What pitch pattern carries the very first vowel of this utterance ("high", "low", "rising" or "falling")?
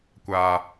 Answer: low